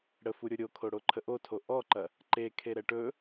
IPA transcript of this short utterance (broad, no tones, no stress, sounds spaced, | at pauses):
ɽ ə f u ɾʲ o ɾʲ o kʰ o ɽ o ǃʰ ə ʔ o tʰ o ʔ ɔ ǃ ɐ | ǃ e kʰ e ɾ ɛ ʈ ɵ